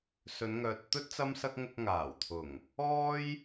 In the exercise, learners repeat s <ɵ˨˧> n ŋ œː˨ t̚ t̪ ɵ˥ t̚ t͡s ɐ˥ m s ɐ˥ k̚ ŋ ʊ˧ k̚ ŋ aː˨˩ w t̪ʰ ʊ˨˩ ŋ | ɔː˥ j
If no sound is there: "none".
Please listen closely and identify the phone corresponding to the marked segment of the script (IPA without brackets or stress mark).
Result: ɵ˨˧